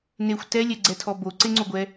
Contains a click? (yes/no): yes